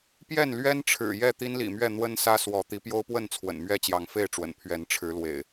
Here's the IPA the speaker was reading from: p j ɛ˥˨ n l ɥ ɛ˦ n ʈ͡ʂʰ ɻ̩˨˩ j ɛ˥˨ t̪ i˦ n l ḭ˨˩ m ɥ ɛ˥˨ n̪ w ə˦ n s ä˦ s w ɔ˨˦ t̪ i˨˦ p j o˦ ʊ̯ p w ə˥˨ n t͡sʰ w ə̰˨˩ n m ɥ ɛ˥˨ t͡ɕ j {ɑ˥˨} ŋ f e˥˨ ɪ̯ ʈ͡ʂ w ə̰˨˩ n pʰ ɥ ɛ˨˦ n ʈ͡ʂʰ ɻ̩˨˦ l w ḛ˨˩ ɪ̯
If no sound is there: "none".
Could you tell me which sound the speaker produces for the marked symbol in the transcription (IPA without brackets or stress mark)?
ɑ˨˦